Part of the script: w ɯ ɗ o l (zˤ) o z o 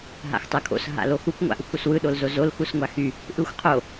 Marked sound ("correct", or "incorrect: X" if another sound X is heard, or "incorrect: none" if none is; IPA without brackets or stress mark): incorrect: z